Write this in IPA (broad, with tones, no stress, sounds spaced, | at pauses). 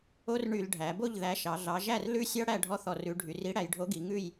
o˦˥ r ɳ y˧˩˧ l ɖʱ æ˩˧ b o˥˩ ʎ ð æ˨˥ ʃ ɑ˩˧ ɮ ɑ˩˧ ʒ æ˥˩ r l ʉ˦˥ sʲ ɑ˦˥ ɽ æ˥˩ ɖʱ ɔ˦˥ θ ɔ˧˩˧ r ʉ˩˧ ɖʱ y˩˧ r i˨˥ ɽ æ˩˧ j ɖʱ o˨˥ ɡ i˩˧ ŋ ʉ˥˩ j